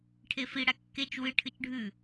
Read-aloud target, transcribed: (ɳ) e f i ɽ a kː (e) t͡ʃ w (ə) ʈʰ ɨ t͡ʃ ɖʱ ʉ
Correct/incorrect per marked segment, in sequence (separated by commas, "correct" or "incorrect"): incorrect, correct, incorrect